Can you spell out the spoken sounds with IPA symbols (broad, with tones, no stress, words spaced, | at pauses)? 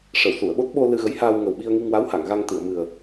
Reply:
ʂə˨˩˨wsu˨˩˨ə̯ɓo˦˥t̚ɓo˧ lɨ˧ɣə˧˥jhaː˧w ŋə˨˩wɓi˧ə̯ŋi˧ŋwa˧˥w ha˨˩˨ŋɣa˧ŋ t̪ɨ˨˩˨ə̯mɨ˨˩ə̯